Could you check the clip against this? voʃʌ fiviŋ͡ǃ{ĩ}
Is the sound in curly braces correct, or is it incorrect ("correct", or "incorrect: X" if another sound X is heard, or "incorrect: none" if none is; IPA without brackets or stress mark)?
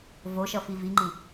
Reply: correct